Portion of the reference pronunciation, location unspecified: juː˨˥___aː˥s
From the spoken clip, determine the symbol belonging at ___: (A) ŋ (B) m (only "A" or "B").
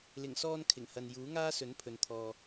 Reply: A